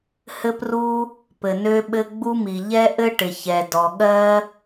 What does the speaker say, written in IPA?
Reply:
hɘ˥pru˥ | pɘ˩nø˥ɓɘ˥ ɡ͡bu˥mi˩ ʎɛ˥ ʔɘ˥ʈɪ˩ çɛ˩ dɔ˩ɠɜ˥

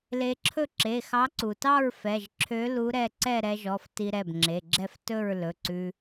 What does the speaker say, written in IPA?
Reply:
le˧ǁʰɵ˥˨ ǁe˩˧˩xɑ˨˥ǀu˩tɑ˥˨ɹ fɛ˩˧˩ʒǁʰø˨˥lu˨˥ɾɛ˩˧˩ ǀɛ˥˨ɾɛ˧ʒɔ˩˧˩f ti˧ɾɛ˩˧˩bŋ͡ǁe˩˧˩ɡ͡ǁɛ˥˨f tɵ˥˨ɹ lɵ˩˧˩ǀʉ˧

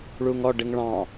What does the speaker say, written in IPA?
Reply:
ɭuŋɔ ɖɪŋɭɑ̃

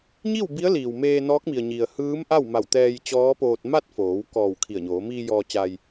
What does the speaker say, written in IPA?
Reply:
ɲi˥˨w bi˧˥ə̯liː˩wmeː˧ nɔː˧˥k̚mi˩ə̯ɲi˩ə̯ hɯː˧˥mʔa˥˨wma˧˩w t̪ɛː˧j t͡ɕɔː˧˥poː˧t̚ ma˥˨t̚foː˩˧w kɔː˧˩w kʰi˧˩ə̯ɲoː˩˧ miː˧ jɔː˧ t͡ɕa˧j

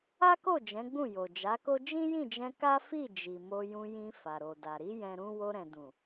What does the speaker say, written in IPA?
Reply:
a˦ko˦˨ d͡ʒɛ̃˨˦ɡ͡bũ˦˨jo˨ d͡ʒa˨˦ko˦ d͡ʒĩ˦jĩ˦˨d͡ʒɛ̃˧ ka˦fi˦˨ d͡ʒi˨mo˧jũ˧jĩ˧ fa˨ɾo˨da˨ ɾi˨˦ jɛ̃˧ɾũ˦ wo˧ɾɛ̃˨dũ˨

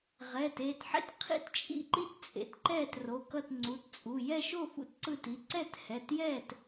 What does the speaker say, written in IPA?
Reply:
ʁɛː˩˧˩teː˥˨tħḛ˥t qʰḭ˥˨tt͡ʃʼḭ˥˨ǃi˥t t͡sʼḛ˨˦tǃɛː˥˨tro˩˧˩kʌ˥˨t ŋ͡ǀu˩˧˩tt͡sʼu˩˧˩ jɛ˥˨ʃo˥˨ fṵ˥tǀɯ˥˨ti˩˧˩ ǀɛ˥˨thɛ˩˧˩tjɛː˥˨t

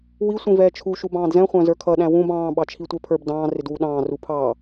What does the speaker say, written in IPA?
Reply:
wi sʷĩvɛːt͡ʃʰu ʃubɑ̃ːdzɛ̃ χʷæ̃zə˞kʰʌ ɗæ̃wũb ɑ̃ː ɓɑt͡ʃʰitʷɛpʰə˞b dɑ̃ː rɪdwuɗɑ̃ː rupʰɑ

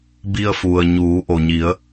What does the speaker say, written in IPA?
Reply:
bi˧ə̯fu˩ə̯ ɲuː˩˧ʔo˩ɲi˩˧ə̯

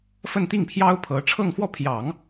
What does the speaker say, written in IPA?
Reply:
fə˥˧nt̪i˥˩ŋpʰjɑ˥ʊ̯pʰɤ˧˥ ʈ͡ʂʰɤ˥˧ŋxwɔ˥˩pʰjɑ˨˩˦ŋ

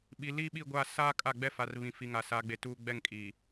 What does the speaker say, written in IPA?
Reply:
ɓi˨ liː˦ɓi˦˨ɡʷa˦˨ saː˦ kʼa˦˨ɡ͡bɛ˦fa˨r βĩ˨fi˨ŋa˨ sa˨ɡ͡be˨ tuː˦ ɡ͡bɛ˦˨ŋ kʼiː˨

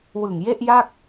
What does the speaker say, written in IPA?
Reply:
wɯ˨˩ŋje˥˩ʔ ja˥˩k̚

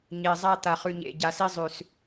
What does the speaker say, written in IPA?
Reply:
ɲe˨zˤa˦t̪a˨χ ʉ˨ɲḛ˨ ɟa˨si˦zˤʉ˨s

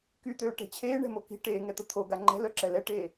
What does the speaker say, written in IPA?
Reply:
kyt̪øːʈɛ̤ t͡ɕʰeːɳɛ̤mo ki̤ ʈeːŋɛt̪ə t̪ʰoɡa ŋ͡ǃɛ̤lœǁɛ lɛʈeː

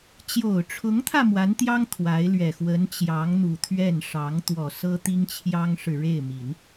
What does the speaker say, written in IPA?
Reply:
t͡ɕjo˨˩ʊ̯ʈ͡ʂʰʊ˧˥ŋt̪ʰä˧ mwa˧˥nt̪jɑ˥ŋ t̪ʰwa˧˥ɪ̯lɥɛ˨˩ xwə˧˥nt͡ɕjɑ˧˥ŋ n̪u˨˩t̪ʰɥɛ˥˩n ʂɑ˧˥ŋ t̪wɔ˨˩sɤ˥ t̪i˥ŋt͡ɕʰjɑ˥ŋʂɻ̩˨ ɻe˥˩ɪ̯mi˨˩˦n

